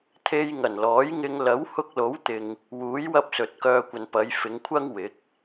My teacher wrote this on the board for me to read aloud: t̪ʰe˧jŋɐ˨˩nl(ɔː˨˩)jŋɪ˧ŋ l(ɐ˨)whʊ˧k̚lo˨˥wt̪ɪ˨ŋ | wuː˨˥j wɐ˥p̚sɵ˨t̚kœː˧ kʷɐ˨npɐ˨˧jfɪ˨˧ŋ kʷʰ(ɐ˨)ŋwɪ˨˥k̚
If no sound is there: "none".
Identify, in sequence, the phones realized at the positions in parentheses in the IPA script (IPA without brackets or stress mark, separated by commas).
ɔː˨˥, ɐ˨˥, ɐ˥